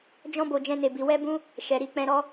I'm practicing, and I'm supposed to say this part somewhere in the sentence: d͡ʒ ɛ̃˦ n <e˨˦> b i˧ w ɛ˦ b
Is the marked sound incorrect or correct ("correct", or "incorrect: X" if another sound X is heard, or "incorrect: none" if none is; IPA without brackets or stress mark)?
incorrect: e˧